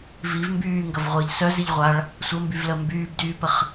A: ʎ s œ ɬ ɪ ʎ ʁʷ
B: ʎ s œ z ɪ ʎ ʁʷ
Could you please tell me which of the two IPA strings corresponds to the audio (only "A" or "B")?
B